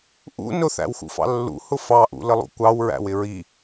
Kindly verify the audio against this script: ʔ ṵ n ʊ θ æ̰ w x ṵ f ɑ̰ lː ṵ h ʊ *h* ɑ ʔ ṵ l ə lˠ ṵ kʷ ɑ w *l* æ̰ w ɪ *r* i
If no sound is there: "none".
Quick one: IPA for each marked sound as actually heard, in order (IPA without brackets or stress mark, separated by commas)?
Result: f, ɹ, ɹ